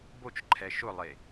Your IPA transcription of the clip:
b o t͡ʃ ǃʰ ɛ ʃ ʊ lˠ e

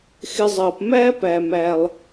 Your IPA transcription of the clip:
x ɪ˨ zˤ ʌː˩ p m æː˥ p æ˩ m æ˩ lˠ

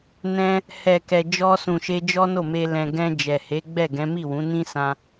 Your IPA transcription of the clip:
n ɛ̃˧ | h ɛ˨ k ɛ˨ d͡ʒ ɔ˧ s ũ˨ ʃ e˧ d͡ʒ ɔ˦ n o˦˨ m e˧ l ɛ̃˨ ɡ ɛ̃˧ d͡ʒ ɛ˨ h e˨˦ ɡ͡b ɛ˦˨ ɡ ɛ̃˨˦ m i˦˨ w ũ˨˦ n ĩ˦ s ã˧

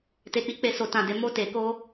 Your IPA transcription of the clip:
t e˨ k͡p i˨˦ k͡p e˧ s o˨ t ã˨ d e˨ m o˧ t e˨ k o˧

